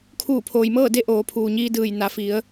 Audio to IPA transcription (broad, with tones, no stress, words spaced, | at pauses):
kʰuː˧˩pʰoː˩jmɤː˥˨de˧˥ ʔoː˩˧pʰuː˩ɲiː˧dɯː˧˩j na˩˧fi˩˧ə̯